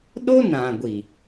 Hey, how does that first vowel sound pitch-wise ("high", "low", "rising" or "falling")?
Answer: high